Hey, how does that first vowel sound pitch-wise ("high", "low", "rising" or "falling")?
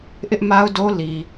high